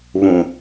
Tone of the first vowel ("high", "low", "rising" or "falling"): low